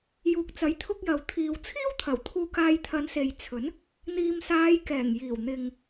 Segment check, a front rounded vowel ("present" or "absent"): absent